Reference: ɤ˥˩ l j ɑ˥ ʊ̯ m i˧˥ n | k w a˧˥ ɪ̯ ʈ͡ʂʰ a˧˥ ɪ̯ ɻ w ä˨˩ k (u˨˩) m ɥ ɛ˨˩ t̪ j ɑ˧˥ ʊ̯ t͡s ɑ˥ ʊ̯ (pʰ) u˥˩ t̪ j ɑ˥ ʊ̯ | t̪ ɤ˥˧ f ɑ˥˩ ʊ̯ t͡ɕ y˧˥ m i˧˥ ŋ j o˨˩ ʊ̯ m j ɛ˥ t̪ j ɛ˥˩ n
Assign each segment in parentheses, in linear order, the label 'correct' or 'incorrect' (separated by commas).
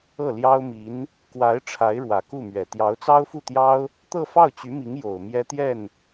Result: incorrect, incorrect